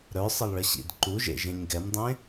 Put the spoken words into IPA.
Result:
ɾ œ sˤ ə lˠ ɭ ə ɕ ḭ d ǃ u ʒ ḛ ʒ ẽ ɲ ɡ ɛ m dˤ ẽ

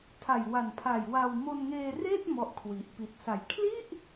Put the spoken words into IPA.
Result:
tʰ a˨˩ j w a˨˩ n pʰ a˨˩ j w a˧ w m o˧ n ŋ eː˧ r eː˥˩ t̚ m ɔ˦˥ ʔ kʰ w i˨˩ ʔ p i˨˩ t̚ s a˨˩ j kʰ l i˥˩ ʔ

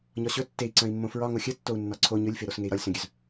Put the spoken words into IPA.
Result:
ɲ ɒ ɕ ɵ tː e i̯ ǀ œ̃ i̯ mː õ f ɹ ɒ ŋ o xʲ ə tː o u̯ nː ɒ ǀʰ o ɲ ɵ lʲ f e ɾ o s ŋ e i̯ ɾ ɒ lʲ s œ̃ ɡʲ œ z

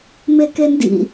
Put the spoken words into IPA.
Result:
m e k e n d ḭ

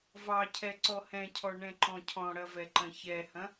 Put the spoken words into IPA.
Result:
v ɑ cʰ ɛ ǀ ɔ h ɛ̃ cʰ ɔ ɳ ɛ̃ ǃ ɔ̃ cʰ ɔ̃ ɽ ɐ v ɛ ǃ ɐ̃ ç ɛ h ɐ̃

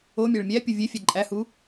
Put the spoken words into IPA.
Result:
o mʲ æ ɭ mʲ æ pʲ u vʲ e fʲ æ ǃʼ æ h u

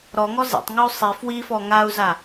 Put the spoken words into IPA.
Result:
ɾ ɔ ŋ ɔ z ḛ tˤ ŋ ɯ u̯ sˤ i f w i f ɔ ŋ a u̯ z a

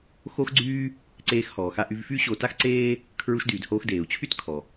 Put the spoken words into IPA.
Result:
x o˥ x ɡ͡ǀ yː˥ | ǀ eː˧ x h ɔː˩ x a˧ ʔ y˧ v f y˥ ɕ o˧ t a˥ x ǀ eː˥ | kʰ ɹ u˧ ʃ d yː˩ d h oː˧ x d eː˩ u̯ t͡ɕʰ y˥ t kʰ ɔ˩

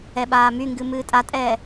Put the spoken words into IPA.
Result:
ɛ ɓ aː m y ŋ ɡ ɨ m ɨː tʼ a tʼ ɛː

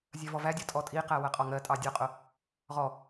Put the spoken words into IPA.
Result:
zʲ ɜ v ɔ v æ dʲ ɒ tʼ ɔ tʼ i q æ w ɜ qʼ ɒ ŋ ɜ tʼ ɑ dʲ ɒ qʼ ʊ | ʁ ɔ

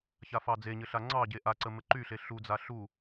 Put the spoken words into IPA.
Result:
ç a f ɑ d͡z e ɲ ɘ ɬ a ŋ͡ǀ ɑ ɟ e ʔ a ǀ ə m ɘ ǃ y ɬ e ɬ u d͡z a ɬ u

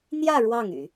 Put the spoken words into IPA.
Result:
n̪ j ä˥˧ ɻ w ɑ˥˩ ŋ y̰˨˩˦

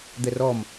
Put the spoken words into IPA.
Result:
d̪ ɛ r ɔ m

